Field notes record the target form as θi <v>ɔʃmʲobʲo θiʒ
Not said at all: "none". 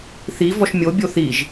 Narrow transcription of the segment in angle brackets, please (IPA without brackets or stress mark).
v